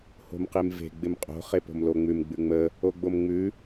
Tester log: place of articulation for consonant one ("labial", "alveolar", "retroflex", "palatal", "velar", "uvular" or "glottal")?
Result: glottal